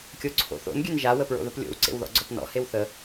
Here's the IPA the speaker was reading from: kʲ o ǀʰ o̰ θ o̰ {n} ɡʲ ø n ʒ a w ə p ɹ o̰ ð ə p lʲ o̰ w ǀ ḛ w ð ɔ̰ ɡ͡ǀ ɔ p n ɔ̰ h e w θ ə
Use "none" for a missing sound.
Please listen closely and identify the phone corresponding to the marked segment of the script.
n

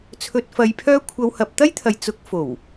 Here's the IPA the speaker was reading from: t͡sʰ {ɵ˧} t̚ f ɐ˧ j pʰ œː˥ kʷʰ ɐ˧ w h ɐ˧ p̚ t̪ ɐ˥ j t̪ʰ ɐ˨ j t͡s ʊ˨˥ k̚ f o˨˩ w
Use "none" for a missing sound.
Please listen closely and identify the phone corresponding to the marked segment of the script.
ɵ˧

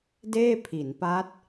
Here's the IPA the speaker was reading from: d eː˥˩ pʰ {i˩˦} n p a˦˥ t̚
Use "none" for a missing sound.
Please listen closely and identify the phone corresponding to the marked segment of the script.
i˩˦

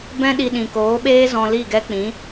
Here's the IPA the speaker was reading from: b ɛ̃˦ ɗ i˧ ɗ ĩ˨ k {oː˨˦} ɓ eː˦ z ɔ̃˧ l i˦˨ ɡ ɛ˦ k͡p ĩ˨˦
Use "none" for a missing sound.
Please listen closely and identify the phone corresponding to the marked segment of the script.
oː˨˦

